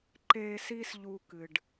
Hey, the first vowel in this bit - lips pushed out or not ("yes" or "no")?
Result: no